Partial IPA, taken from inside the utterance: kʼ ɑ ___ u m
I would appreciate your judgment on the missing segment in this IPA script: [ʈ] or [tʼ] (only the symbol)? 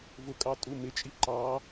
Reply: tʼ